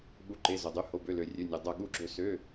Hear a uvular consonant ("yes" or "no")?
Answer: no